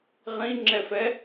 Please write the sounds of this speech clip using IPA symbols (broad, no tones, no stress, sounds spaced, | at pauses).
ʁ ĩ ŋ͡ǁ ɛ f ɛ